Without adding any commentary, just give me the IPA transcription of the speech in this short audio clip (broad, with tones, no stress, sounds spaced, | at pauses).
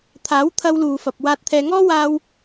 t̪ʰ aː˨˥ w t̪ʰ ɐ˧ w l uː˨ f ɐ˨ p̚ w aː˧ t̚ t̪ʰ ɛː˧ ŋ ɔː˥ w aː˧ w